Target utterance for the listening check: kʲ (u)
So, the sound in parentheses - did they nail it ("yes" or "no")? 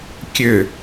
no